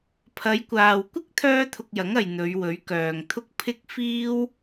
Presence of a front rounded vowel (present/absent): present